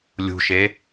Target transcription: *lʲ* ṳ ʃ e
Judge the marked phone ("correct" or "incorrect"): correct